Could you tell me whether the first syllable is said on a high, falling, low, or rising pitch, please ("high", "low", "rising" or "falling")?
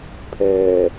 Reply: low